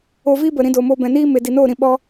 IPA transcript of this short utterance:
o˧vi˦bə˨ ɾĩ˧do˨mo˧ bɛ̃˨niː˦me˨ di˨noː˦˨ɾĩ˧ ɓɔ˧

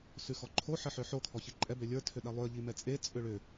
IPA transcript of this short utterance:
sʉxɔǃʰo ħəħʏħo kʰɔçiǃʼɛ bølʲə˞ tʰʏɗɛlˠʏə̯ ʎimɛt͡sʼe t͡sʼʏɭʏ

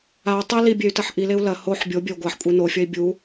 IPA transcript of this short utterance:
au̯ tˤe libʲey̯tɐħ ʔileu̯ lɐ hoħ bʲobʲɐu̯ ɡʷaħkʷʼe nofʲɐi̯ bʲu

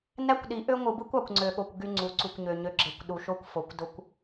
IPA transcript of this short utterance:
næ˦kʷɗi˨˦ʔø˦ ŋʷɯ˨bɯ˦kʷɑ˨kʷ ŋ͡ǀø˨ɠo˨kʷ ɡy˦ŋ͡ǀu˨˦ ǀu˨kʷɲø˨ɲø˨ɡ͡ǁe˨kʷ ɗu˨ʃo˦kʷfo˨˦kʷ do˦kʷ

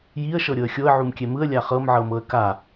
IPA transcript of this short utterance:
jiə̯ʃɤ ɾʲɤə̯xʲoə̯ ʕumkʲɛmɯə̯ lʲaχɤmʕɤ mɤə̯ka

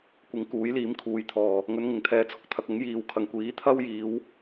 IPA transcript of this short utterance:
kʷɪ˨˥ŋ kuː˨˥jliː˨˥mkʰuː˨jt̪ʰɔː˨˩ | ŋɵ˨˧nŋɪ˨˩ŋt̪ʰɛː˨t͡sʰʊ˥k̚ t̪ʰɐ˨k̚ ʊ˨˥ŋ jiː˨w kʰɐ˨˩ŋkʷiː˨˥ t̪ʰɐ˥wjiː˨˧w

